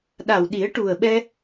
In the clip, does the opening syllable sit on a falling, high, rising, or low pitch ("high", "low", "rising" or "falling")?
low